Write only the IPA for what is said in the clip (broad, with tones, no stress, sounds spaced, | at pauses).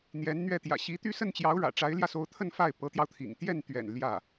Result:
n̪ j ɛ˧˥ n n̪ ɥ ɛ˥˩ t̪ j ä̰˨˩ ɕ i˧˥ t̪ y˥˧ s ə˥˩ n t͡ɕ j ɑ˧˥ ʊ̯ ɻ ä̰˨˩ ʈ͡ʂ a˧˥ ɪ̯ l j ä˧ s o˧˥ ʊ̯ t̪ʰ ə˥˧ n f a˥˩ ɪ̯ p ɤ˧˥ t̪ j ɑ˧ ʊ̯ t̪ʰ ḭ˨˩ ŋ t̪ j ɛ˥˩ n t̪ ɥ ɛ̰˨˩ n l j ä˥˩